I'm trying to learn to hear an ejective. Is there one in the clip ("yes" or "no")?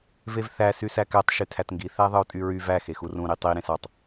yes